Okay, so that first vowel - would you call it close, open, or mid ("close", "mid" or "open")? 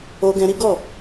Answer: mid